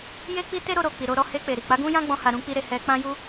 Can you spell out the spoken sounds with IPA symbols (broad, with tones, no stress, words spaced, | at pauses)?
je˦k͡pi˦ te˦ɾo˧ɾo˨ k͡pi˨ɾo˧ ɾɔ˧he˧k͡pe˨ɾi˨ k͡pa˨˦ɡũ˦jã˦ɡ͡bɔ̃˧ ha˧ɾũ˦k͡pi˦ɾe˧ hɛ˧k͡pã˦ju˦